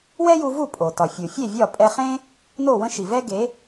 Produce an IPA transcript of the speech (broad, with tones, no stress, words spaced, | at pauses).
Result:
wɛ˥ju˧vu˥˩ pʼo˩ tɒ˩fʲu˩fʲe˥˩ vʲɒ˥˩pʼɛ˧χẽ˥ | no˥˩wə̃˥ʃi˩ vɛ˥ɡe˩˥